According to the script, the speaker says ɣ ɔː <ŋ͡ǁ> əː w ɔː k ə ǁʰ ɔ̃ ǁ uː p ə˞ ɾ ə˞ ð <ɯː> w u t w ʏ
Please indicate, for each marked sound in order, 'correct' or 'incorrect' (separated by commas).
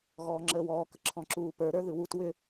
correct, incorrect